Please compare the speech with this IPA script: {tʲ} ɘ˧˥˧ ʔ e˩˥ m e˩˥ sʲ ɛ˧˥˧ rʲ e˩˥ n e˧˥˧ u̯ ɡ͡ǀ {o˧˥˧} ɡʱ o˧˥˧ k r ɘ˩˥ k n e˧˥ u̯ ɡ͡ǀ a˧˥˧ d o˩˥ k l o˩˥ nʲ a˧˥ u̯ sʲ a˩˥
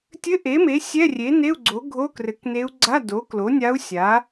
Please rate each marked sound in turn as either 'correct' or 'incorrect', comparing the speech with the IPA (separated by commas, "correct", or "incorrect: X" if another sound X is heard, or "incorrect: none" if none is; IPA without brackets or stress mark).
correct, incorrect: o˩˥